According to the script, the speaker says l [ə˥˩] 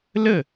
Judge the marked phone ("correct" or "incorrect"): correct